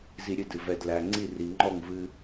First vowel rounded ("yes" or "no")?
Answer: no